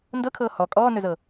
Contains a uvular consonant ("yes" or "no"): no